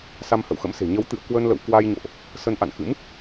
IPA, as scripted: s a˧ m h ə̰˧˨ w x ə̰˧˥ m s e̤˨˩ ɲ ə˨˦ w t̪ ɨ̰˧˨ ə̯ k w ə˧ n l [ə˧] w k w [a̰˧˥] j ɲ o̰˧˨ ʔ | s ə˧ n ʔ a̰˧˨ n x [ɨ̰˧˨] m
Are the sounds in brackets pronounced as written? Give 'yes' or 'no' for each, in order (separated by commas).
no, no, no